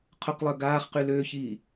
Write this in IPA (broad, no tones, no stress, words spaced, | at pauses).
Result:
qʰʊqlˠœ ɡaːχqy løːçiː